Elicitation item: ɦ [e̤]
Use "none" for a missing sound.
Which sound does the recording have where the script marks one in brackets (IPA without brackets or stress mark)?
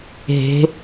e̤